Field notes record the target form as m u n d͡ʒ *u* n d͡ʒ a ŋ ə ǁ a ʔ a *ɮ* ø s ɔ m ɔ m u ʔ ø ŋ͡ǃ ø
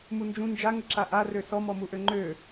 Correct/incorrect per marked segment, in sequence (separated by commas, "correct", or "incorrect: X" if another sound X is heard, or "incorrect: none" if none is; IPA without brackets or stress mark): incorrect: ũ, incorrect: r